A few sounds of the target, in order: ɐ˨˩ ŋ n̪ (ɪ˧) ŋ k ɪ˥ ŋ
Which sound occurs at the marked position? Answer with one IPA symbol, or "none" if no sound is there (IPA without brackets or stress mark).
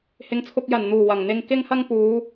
ɪ˧